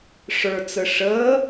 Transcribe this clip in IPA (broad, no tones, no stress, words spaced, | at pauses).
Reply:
ʂə˞t͡sə ʂəː